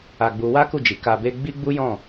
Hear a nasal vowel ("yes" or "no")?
yes